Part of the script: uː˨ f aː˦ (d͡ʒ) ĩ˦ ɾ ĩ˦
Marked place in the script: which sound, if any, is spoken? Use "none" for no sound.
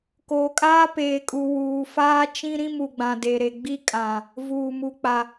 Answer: t͡ʃ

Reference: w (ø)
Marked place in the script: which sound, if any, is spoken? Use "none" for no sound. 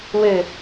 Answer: ø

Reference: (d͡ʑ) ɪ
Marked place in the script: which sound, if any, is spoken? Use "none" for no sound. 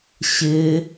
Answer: ɕ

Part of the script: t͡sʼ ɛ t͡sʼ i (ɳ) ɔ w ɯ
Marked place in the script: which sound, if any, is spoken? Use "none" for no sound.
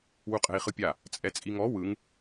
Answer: ŋ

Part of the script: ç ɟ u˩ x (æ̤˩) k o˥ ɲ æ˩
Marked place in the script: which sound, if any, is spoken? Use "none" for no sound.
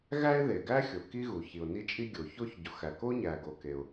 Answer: æ˩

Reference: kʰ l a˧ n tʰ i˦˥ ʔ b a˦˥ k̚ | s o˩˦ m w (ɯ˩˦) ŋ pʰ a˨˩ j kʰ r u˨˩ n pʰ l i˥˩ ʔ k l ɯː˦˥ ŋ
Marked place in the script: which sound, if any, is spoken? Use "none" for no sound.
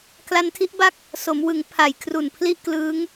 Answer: ɯ˩˦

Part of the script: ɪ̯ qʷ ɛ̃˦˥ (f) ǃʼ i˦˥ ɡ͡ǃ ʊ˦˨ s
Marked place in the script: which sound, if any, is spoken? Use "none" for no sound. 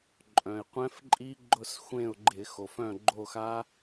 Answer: f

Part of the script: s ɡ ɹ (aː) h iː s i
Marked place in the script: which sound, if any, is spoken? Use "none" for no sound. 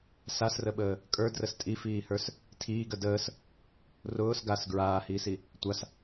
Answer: aː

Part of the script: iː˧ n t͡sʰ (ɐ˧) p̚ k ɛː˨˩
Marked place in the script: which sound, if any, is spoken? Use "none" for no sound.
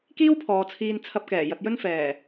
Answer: ɐ˧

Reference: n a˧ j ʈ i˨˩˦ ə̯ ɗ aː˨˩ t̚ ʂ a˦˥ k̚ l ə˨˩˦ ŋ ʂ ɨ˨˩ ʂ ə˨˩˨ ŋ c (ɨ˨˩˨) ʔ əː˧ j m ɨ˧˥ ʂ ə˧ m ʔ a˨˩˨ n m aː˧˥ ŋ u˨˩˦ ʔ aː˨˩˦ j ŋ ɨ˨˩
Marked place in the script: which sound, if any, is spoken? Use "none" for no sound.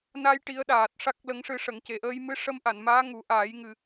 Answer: e˨˩˨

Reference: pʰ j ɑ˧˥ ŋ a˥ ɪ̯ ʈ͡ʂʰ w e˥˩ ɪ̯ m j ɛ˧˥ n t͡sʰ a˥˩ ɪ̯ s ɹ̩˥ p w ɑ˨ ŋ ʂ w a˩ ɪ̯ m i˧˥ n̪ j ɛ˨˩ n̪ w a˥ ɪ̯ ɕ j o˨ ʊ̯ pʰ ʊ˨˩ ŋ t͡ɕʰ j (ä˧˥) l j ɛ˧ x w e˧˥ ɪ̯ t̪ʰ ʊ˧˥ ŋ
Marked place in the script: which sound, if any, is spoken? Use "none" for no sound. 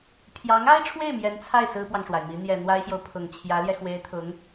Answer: ä˧˥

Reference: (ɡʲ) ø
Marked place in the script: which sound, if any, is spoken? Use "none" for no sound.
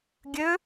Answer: ɡʲ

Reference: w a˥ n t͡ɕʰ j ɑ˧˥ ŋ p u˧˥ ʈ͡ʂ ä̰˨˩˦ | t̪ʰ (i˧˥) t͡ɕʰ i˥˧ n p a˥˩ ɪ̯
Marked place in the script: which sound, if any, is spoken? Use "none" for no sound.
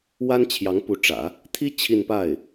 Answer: i˥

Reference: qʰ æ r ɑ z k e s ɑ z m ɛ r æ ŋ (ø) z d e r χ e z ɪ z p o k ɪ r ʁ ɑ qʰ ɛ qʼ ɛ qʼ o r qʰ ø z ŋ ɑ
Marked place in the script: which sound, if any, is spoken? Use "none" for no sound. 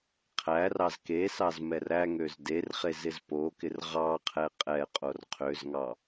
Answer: ø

